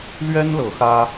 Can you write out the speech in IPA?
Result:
lɥɛ˦n lɤ˨˦xä˦

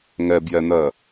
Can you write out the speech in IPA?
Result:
ŋɛbjɛn̪ɜ

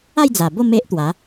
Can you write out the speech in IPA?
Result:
a˥˧jd͡za˨˩bo˥˧ me˦ʔ t̪wa˨˦

